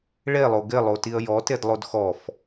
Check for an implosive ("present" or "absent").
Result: absent